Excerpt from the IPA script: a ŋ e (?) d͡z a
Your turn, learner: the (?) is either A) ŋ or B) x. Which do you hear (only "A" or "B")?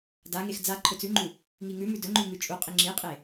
B